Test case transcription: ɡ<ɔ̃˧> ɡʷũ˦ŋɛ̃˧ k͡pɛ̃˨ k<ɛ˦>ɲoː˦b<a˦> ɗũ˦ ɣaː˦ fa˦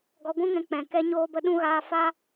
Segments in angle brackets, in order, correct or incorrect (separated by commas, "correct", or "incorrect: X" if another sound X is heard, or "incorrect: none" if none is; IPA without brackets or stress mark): incorrect: ɔ˧, correct, incorrect: ə˦